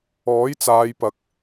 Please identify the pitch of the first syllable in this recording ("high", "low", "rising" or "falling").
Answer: rising